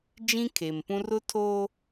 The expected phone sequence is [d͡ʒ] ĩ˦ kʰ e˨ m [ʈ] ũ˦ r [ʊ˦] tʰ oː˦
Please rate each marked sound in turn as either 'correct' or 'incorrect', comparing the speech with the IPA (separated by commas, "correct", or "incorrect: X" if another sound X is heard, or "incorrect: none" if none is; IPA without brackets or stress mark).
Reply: correct, incorrect: p, correct